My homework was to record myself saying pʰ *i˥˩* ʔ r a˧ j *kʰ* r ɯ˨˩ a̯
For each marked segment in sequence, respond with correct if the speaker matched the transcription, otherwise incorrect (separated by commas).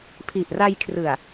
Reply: incorrect, correct